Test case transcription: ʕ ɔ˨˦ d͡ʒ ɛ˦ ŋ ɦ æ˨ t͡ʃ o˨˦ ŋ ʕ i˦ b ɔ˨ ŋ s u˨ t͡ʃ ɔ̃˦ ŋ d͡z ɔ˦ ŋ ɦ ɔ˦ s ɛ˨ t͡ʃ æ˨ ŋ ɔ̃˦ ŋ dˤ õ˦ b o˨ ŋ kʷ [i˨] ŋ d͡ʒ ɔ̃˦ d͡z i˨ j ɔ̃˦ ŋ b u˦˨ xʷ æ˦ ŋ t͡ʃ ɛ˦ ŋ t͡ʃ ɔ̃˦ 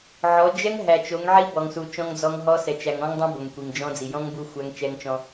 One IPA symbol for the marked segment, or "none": i˨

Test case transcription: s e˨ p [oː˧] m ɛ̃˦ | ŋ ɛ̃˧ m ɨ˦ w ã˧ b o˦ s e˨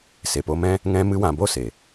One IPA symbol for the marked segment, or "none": o˧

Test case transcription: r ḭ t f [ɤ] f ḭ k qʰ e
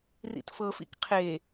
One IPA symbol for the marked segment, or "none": ɤ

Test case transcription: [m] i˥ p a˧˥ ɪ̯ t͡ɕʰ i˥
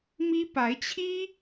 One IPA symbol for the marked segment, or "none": m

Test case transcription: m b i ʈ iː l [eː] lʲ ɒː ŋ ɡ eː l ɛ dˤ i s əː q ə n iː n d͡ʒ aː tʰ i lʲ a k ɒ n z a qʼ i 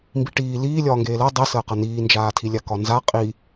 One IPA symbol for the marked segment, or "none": iː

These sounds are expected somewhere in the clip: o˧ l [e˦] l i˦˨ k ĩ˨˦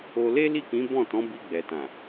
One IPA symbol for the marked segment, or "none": e˦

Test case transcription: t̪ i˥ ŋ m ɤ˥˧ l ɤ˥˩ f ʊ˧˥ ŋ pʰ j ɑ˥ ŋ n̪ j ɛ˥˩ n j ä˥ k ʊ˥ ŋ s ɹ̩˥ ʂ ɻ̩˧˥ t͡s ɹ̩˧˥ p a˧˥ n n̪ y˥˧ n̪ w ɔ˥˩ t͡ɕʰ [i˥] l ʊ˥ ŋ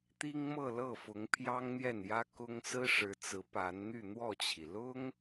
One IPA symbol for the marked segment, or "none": i˩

